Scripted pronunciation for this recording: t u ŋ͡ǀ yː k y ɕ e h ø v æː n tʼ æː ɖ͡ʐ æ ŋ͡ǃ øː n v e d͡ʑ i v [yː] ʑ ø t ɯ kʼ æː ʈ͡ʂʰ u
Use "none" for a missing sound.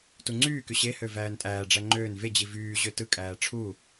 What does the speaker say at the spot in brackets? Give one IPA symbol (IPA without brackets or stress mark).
yː